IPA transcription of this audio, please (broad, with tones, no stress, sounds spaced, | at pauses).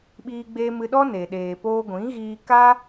ɓ iː˧ ɡ͡b e˧ m ɨ˧ ɗ ɔ˦ n e˨ ɗ eː˨ p oː˧ ɡʷ ĩ˨˦ ɣ iː˧ k aː˦